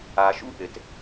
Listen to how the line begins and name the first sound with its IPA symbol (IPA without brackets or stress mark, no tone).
a